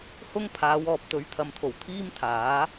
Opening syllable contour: high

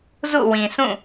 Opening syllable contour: falling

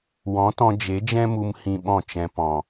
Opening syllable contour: rising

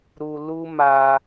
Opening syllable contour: high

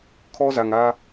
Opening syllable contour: high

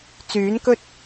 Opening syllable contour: rising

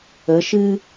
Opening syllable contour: rising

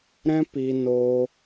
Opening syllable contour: high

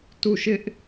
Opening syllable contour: falling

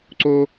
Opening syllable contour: high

